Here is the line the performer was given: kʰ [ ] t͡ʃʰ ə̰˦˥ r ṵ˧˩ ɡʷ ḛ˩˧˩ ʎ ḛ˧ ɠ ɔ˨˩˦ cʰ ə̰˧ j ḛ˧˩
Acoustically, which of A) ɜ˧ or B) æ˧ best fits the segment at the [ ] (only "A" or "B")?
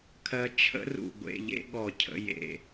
A